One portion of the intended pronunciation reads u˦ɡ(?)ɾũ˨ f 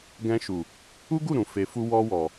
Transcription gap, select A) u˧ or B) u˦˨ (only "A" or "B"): B